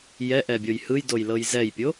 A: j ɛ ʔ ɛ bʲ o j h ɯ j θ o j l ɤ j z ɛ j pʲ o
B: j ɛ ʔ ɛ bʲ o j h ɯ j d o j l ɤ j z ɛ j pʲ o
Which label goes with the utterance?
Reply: B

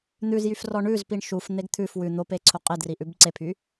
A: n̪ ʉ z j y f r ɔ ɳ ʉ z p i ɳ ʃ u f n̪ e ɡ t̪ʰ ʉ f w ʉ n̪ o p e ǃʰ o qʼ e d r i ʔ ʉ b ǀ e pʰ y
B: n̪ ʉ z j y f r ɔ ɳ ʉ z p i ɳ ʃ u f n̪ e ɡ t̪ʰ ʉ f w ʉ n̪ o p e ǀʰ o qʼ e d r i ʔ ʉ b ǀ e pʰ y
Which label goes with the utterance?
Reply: B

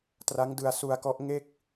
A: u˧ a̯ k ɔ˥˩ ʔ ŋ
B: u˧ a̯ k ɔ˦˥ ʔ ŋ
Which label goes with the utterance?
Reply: B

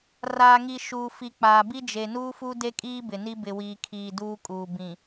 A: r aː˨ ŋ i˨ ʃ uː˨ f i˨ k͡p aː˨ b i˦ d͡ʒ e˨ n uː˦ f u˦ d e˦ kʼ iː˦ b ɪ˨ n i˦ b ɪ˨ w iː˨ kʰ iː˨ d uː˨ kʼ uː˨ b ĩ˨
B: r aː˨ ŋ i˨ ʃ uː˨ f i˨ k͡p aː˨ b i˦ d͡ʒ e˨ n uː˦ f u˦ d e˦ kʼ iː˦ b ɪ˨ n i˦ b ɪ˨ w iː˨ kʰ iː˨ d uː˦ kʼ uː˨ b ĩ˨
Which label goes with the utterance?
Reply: B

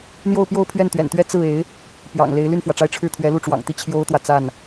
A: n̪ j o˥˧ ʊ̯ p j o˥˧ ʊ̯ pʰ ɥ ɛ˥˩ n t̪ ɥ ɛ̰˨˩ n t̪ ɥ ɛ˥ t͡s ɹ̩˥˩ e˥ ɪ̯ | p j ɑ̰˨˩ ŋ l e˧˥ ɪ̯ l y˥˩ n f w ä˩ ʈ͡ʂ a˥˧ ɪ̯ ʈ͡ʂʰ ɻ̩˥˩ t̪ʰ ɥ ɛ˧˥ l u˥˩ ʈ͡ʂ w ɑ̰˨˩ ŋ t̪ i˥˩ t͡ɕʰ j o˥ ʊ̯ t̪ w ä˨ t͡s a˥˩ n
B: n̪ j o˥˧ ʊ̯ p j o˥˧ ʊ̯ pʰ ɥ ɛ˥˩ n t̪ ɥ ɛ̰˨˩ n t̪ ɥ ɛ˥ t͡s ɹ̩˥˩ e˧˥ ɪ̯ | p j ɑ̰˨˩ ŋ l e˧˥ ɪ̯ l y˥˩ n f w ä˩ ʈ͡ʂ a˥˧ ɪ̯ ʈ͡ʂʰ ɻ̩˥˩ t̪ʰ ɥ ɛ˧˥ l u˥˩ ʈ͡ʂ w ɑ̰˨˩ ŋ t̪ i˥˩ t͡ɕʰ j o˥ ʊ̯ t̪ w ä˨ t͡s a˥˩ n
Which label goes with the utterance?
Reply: B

